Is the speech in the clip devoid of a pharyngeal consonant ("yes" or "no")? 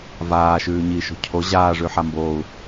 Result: no